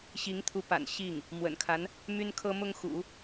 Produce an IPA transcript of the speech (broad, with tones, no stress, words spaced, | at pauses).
ɕi˧˥ŋt̪ʰu˧˥pa̰˨˩n ɕi˥˩ŋ | mwə̰˨˩nkʰa˧˥n | my˥nkʰɤ˥mʊ˥ŋxṵ˨˩˦